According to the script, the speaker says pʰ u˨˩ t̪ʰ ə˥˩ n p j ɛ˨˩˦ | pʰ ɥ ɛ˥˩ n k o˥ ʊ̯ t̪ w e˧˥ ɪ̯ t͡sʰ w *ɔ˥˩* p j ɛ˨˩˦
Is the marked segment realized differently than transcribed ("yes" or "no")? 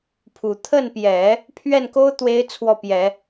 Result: no